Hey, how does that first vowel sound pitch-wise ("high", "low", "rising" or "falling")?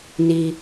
low